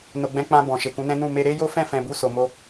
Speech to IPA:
n o˨ ɡ͡b ɛ̃˨˦ k͡p ã˧ b ɔ̃˨ ʃ e˨ k ũ˨˦ n ɛ̃˦ n ũ˦˨ m e˧ ɾ e˦ j o˦ f ɛ̃˦˨ f ɛ̃˨ b u˧ s o˨ m o˧

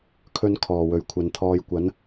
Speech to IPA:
kʰ ɵ˧ n kʰ ɔː˨˩ w ɵ˨˩ ɥ kʷʰ ɐ˨ n t̪ʰ ɔː˧ j kʷ ɐ˨˥ n

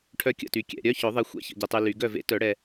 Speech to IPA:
ʈʰ œ˦˥ kʲ ə̰˥˩ t y˨ kʲ ɛ̰˨ ɾʲ œ˧˥˧ ç ʊ˨˩˦ ðˤ e˨˦ xʷ ɛ̰˦˥ ç ə̰˨ ɟ e˨ tˤ y˨ l y˨˩˦ ɡ œ˥˩ v ḛ˦˥ t œ˨˩˦ ɽ ɛ˨

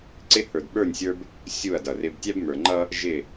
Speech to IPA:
ǀ ɪ˦ h ə˞˨ d ɓ ə˞˦˨ nʲ sʲ ə˞˦ b | sʲ u˦˨ ɐ̯ d ʌ˨ r ɪ˦ b tʲ æ˦ b m ə˞˨ ŋ͡ǃ ʌ˦ | ʒ ɪ˦˨

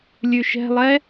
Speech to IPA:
lʲ ʉ ʃ ɛ̤ lˠ ɛ

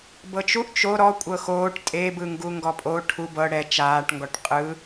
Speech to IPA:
b ɤ t͡ʃ u ʔ t͡ʃ o ɾ ɔ kʷʼ ɤ x oː ʈ tʼ e b ɯ ŋ ɡ u ŋ ɡ ɔ pʼ o ʈʰ u b ɤ ɽ ɛ t͡ʃ aː ʈ ŋ ɡ ɔ ʈ qʼ ɯ

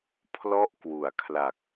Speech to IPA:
pʰ l ɔ˥˩ ʔ k w u˩˦ a̯ kʰ l a˨˩ k̚

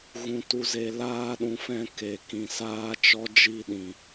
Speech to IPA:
ɣ ũ˨ t u˨ z e˨ l aː˧ ɗ ũ˨ f ɛ̃˧ k e˨ k ĩ˨ s aː˦ t͡ʃ ɔ˦ d͡ʒ i˦˨ ɗ ĩ˨

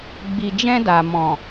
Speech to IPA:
ɡ͡b i˨ d͡ʒ ɛ̃˧ d a˨ m ɔ̃˨

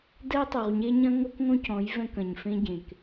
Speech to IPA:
d ɛ˦ tˤ u˨ ʁ ɲ e˦ ɲ ɐ̃˦ ŋ o˦ k ŋ õ˦ c ɔ̃˨˦ j v ɛ̃˦ k ɐ̃˨ ɲ f ẽ˦ ɟ ẽ˨ k

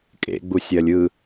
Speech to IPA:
kʼ ḛ ɡ͡b u sʲ ɜ lʲ ɯ

